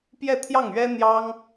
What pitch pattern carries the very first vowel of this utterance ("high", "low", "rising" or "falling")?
falling